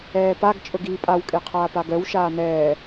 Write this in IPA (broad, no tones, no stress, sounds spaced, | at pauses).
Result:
ɛː p a ɡ t͡ʃʼ ɵ ɡ iː pʼ a w kʼ e qʰ aː p a ɡ œ w ʃ aː n ɛː